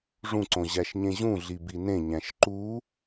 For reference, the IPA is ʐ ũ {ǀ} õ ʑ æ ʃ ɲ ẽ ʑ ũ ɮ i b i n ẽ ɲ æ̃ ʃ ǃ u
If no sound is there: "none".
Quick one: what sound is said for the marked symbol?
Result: ǀ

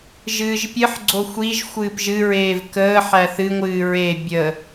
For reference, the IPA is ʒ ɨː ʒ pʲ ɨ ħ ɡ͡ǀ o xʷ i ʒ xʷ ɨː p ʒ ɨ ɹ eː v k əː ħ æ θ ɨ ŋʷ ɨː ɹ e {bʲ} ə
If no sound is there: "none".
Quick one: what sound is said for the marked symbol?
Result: bʲ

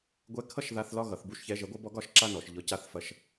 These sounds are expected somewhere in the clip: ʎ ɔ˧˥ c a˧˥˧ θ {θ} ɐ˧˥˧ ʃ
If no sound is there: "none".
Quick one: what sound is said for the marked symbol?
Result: f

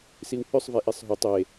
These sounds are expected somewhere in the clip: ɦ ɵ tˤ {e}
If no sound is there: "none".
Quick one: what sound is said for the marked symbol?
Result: e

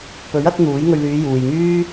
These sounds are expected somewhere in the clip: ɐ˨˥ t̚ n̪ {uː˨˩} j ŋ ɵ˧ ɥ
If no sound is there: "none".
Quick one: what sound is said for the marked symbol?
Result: uː˨˥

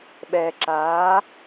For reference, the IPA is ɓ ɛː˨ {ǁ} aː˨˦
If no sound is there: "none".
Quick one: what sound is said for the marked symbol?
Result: ǁ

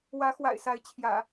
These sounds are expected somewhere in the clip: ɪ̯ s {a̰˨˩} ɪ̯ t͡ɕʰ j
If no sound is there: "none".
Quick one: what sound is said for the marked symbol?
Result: a˨˦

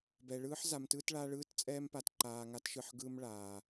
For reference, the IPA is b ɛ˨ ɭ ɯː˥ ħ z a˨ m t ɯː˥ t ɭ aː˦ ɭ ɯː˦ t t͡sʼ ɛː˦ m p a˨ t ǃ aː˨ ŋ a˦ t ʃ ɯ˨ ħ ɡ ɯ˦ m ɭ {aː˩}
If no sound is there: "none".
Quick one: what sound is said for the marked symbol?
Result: aː˩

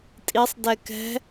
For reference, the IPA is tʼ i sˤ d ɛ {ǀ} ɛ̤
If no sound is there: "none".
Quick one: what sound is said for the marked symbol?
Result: k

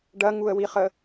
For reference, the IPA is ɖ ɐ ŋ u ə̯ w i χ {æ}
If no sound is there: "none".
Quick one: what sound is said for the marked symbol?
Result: ə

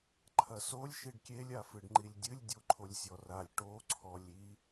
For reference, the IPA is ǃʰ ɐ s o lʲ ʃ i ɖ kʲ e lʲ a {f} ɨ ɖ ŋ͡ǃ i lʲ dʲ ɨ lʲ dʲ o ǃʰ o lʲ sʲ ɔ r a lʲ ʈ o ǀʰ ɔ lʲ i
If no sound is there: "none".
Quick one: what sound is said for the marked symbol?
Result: f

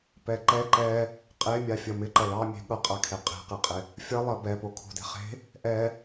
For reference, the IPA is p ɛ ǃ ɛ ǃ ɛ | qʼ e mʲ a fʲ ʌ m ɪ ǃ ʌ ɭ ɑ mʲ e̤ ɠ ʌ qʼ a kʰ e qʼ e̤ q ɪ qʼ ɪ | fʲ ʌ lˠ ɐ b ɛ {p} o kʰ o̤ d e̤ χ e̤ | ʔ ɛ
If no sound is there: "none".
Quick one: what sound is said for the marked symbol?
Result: p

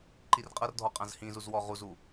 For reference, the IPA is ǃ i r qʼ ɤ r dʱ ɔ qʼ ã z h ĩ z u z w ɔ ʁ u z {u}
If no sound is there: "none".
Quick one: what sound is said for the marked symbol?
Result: u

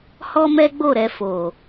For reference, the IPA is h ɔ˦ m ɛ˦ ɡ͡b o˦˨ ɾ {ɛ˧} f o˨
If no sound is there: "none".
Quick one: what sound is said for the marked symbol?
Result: ɛ˧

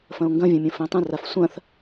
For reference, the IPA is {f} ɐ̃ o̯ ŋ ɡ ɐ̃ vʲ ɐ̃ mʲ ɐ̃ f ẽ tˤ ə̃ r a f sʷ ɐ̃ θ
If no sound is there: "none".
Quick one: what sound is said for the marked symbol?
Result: f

